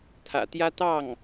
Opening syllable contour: low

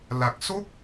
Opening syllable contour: low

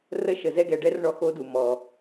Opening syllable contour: high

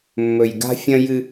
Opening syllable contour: low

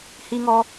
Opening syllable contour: high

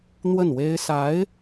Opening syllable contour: falling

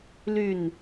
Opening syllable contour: falling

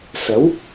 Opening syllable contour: rising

